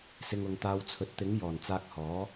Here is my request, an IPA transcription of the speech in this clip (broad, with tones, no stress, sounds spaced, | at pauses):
s ɪ˧ ŋ ʊ˨˧ ŋ t̪ aː˧ w t͡sʰ ɵ˨˥ t̚ t̪ ɪ˨˥ ŋ j ɔː˨˩ n t͡s aː˧ k̚ h ɔː˨˥